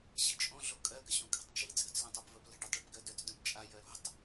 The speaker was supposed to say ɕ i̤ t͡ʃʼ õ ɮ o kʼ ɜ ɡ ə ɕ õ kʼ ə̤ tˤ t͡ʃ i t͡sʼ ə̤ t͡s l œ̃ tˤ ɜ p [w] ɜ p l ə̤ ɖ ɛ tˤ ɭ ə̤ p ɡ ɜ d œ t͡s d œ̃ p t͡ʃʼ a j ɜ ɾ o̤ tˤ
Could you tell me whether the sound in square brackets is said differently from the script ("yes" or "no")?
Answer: yes